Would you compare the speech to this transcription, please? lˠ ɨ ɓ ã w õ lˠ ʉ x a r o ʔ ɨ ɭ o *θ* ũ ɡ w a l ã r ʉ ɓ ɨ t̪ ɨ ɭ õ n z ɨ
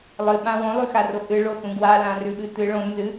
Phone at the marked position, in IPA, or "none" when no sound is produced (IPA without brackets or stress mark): θ